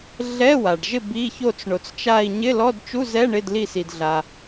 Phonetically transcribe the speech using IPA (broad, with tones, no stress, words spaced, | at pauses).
ɮɛ˧˥˧wa˩ɖʒɪ˦˨ bi˧˥˧ ço˦˨t͡sɳo˩t͡st͡ʃa˦˨i̯ ɲɪ˧˥˧lɔ˧˥˧dt͡ʃu˧˥˧zɛ˧˥˧ ɳɪ˧˥˧dli˦˨ si˩dɮa˩